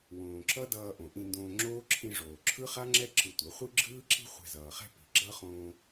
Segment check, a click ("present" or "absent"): present